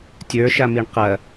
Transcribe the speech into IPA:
tʲə˞ʃamiɳ qɐ

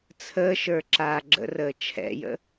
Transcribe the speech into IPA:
t͡sʰəːʃə˞ǁaː ɡ͡ǁə̰rəː t͡ʃʰɛ̰jə̰

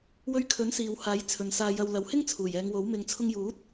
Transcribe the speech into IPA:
wɵ˧ɥkʰɵ˨˥nsiː˨w haː˨˥j t͡sʰɵ˨nsaː˧jɐ˧w lɐ˨˧whɪ˥ŋ t͡sʰuː˨˩jɛː˨˧ŋwo˨˥w mɪ˨ŋ t͡sʰʊ˧ŋjuː˨˥t̚

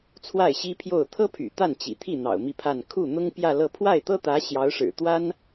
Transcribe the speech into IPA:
t͡sʰwa˥˩ɪ̯ɕi˥pʰjo˥˩ʊ̯ t̪ʰɤ˥pʰy̰˨˩ t̪a˥˩nt͡ɕḭ˨˩t̪ʰi˥˩n̪ɑ̰˨˩ʊ̯ mi˥˧pʰa˥˧n kʰu˥˩n̪ʊ˥ŋ pjä˥˧lɤ˥˧ pʰwa˥˩ɪ̯t̪ɤ˥ t̪ä˧˥ ɕjɑ˧˥ʊ̯ʂɻ̩˨˩ t̪wa˥n

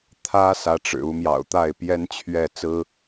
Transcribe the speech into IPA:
t̪ʰä˥ sä˧˥ʈ͡ʂɻ̩˨˩u˧˥ mjɑ̰˨˩ʊ̯t̪a˥˩ɪ̯pjɛ˥n t͡ɕʰɥɛ˥˩ t͡sɹ̩˥

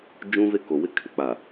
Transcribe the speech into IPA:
d͡ʒũ˦ve˦ ko˨wɪ˦ kʰɪ˨ k͡pa˨

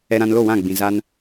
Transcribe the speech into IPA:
ɛ˧ɾã˧nlo˦˨ wã˦˨ɡ͡bĩ˨ za˧n

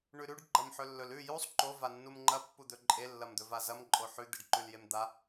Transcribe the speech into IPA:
ɳʉɾʉɖ ɡ͡ǃɐmħɵlːɵl ʉ jusˤ ǃo vanːumŋ͡ǃɐ pːud̪ɵǃʼe lːɐmd̪ɵvazɐm ǃʼoħʉ d̪iɖǃʉljemd̪a

